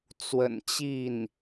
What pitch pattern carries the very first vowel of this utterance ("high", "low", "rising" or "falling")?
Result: low